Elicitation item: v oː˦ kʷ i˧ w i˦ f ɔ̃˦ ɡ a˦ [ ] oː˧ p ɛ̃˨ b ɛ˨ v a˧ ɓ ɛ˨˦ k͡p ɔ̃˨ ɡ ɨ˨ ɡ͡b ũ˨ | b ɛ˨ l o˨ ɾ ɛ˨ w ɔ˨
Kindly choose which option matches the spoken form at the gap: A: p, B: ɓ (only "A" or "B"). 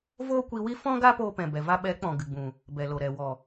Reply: A